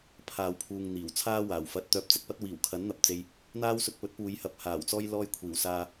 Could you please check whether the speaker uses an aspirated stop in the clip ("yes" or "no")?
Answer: yes